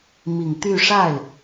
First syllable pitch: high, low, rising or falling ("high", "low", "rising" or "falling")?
low